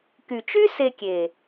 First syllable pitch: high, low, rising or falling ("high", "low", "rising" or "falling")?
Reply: low